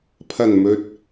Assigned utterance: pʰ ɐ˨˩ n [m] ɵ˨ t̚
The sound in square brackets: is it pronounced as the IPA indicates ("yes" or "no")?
yes